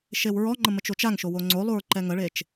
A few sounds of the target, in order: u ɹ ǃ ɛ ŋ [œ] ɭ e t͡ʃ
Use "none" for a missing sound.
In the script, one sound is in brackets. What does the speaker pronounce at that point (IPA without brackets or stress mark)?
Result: ə